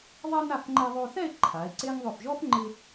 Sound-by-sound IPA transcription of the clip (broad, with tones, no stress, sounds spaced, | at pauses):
ðˤ ɛ˥ n a˥˧ f ŋ͡ǃ ɛ˧ ðˤ o˧ θ ɛ˥˧ e̯ ǃʰ a˩˧ e̯ ǀ e˥ ŋ ðˤ ʊ˧˩ f ʒ ɔ˥ f ŋ͡ǃ ɪ˧